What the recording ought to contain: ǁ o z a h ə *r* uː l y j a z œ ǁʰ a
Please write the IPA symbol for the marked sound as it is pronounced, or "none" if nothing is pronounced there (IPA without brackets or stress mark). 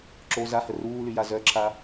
r